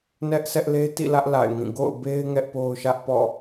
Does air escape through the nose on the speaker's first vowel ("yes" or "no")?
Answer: no